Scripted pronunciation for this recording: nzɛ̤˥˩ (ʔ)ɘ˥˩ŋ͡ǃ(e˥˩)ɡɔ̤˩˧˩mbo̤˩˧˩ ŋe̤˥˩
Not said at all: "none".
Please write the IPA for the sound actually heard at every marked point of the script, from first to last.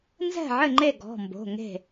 ʕ, e˥˩

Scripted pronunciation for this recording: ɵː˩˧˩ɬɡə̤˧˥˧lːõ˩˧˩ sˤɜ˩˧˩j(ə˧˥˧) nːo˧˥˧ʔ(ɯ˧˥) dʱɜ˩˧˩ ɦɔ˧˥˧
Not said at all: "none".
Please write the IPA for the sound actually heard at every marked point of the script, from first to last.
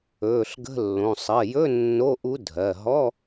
ɵ˧˥˧, u˧˥

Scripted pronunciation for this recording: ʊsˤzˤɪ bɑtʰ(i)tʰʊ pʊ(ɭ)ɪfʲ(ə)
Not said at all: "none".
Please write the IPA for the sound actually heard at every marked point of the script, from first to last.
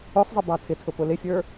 ɪ, l, ə˞

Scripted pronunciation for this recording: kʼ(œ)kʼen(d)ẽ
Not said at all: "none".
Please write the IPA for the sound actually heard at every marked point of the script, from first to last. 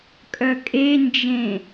œ, d͡ʒ

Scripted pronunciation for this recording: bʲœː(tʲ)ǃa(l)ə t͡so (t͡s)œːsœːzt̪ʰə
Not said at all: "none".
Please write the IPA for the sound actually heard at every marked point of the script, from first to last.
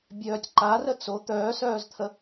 tʲ, r, t̪

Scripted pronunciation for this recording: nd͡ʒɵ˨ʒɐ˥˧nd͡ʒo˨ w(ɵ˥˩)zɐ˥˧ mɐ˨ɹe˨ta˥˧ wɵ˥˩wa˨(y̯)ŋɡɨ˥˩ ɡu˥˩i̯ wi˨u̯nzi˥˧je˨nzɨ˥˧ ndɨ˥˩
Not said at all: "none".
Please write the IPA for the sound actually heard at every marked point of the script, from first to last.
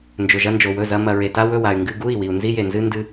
ɵ˥˩, y̯

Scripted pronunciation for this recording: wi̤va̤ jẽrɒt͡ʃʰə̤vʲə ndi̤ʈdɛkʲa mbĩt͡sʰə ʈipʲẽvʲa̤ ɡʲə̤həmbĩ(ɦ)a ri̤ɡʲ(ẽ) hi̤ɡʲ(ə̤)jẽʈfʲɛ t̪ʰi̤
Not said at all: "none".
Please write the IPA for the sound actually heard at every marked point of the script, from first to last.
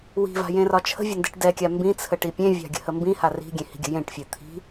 h, ẽ, ə̤

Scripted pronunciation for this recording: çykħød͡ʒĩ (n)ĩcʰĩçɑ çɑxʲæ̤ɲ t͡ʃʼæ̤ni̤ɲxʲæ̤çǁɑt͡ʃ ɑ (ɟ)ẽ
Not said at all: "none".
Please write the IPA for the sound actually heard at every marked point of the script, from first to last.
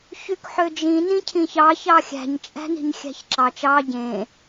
n, ɟ

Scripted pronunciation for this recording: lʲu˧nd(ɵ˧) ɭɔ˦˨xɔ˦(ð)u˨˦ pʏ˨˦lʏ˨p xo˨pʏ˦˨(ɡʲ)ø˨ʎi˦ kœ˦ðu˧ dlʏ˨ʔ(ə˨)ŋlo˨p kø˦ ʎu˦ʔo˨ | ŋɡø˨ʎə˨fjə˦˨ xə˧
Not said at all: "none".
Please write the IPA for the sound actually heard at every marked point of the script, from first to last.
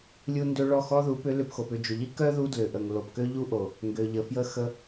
ø˧, ð, d͡ʒ, ə˨

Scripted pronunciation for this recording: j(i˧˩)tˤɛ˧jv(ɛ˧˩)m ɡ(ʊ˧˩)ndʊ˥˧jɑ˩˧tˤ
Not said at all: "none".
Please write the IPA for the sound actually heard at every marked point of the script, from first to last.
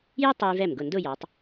i˥, ɛ˧˩, ʊ˧˩

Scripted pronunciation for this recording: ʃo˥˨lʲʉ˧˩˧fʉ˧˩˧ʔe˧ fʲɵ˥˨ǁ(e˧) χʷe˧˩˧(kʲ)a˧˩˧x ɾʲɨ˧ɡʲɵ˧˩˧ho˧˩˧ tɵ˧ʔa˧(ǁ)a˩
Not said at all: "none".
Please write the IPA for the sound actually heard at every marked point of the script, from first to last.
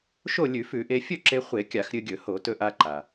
e˧, kʲ, ǃ

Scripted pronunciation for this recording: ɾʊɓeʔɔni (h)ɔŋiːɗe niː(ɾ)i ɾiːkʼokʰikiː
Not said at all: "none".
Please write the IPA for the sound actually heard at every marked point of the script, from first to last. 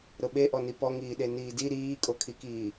p, d

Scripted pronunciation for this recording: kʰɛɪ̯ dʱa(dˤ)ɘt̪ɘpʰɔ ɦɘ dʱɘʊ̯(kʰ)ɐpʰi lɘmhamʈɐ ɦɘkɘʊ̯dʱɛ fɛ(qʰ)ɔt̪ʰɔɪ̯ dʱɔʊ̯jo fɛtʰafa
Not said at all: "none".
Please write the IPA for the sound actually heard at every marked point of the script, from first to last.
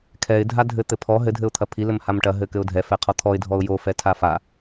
dʱ, t̪ʰ, qʰ

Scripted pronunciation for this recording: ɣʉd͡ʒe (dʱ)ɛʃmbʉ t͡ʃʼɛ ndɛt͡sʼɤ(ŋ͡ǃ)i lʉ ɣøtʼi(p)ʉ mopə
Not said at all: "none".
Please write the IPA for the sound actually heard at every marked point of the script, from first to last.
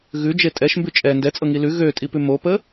tʼ, ŋ, p

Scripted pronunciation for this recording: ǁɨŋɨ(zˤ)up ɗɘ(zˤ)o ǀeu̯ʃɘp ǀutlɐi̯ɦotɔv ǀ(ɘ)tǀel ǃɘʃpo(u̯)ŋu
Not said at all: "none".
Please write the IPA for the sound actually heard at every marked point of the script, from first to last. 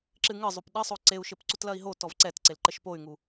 zˤ, sˤ, ɛ, y̯

